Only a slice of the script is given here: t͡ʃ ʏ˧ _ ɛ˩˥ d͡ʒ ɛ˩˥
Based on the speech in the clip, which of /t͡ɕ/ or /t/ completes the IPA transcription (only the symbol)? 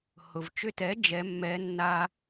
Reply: t